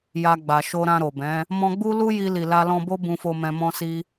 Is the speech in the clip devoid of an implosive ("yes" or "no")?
yes